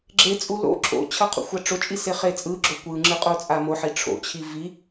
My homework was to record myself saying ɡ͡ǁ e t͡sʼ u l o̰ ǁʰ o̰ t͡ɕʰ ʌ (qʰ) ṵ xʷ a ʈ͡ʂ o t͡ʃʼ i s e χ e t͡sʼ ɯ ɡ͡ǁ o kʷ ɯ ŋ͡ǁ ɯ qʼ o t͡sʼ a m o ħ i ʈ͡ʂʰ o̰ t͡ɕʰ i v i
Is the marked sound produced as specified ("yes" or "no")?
yes